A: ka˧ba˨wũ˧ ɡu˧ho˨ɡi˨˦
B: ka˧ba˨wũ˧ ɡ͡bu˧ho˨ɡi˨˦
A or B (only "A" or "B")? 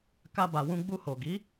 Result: B